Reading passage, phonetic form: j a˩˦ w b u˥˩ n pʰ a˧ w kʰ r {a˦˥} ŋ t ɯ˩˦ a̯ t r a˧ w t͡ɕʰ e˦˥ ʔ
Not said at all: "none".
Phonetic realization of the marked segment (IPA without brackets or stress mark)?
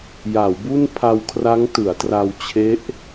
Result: a˦˥